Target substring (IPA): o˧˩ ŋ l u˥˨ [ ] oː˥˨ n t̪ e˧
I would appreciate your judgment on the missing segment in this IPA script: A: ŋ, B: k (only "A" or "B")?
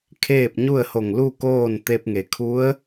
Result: B